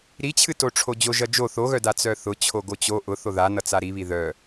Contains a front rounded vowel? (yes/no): yes